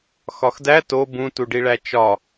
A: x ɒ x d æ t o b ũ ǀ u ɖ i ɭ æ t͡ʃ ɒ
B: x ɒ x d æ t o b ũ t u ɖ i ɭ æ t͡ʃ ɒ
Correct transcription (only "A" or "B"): B